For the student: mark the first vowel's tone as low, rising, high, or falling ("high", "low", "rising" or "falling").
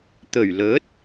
low